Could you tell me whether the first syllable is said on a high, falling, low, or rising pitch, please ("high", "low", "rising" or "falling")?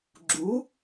rising